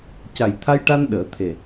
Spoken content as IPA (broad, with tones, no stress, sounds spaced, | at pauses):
c a˨˩ j t̪ʰ a˧ j ʈ a˧ n ɗ əː˨˩˦ t̪ʰ e˨˩